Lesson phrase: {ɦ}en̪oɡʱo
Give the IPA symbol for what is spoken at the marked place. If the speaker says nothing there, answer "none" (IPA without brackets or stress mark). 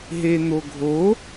ɦ